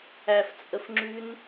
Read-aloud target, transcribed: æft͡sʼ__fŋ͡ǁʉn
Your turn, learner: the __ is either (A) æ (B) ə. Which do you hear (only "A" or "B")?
B